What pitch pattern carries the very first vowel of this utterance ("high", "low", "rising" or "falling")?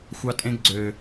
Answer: high